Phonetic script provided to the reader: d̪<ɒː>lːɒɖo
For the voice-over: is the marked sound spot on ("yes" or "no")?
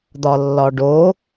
no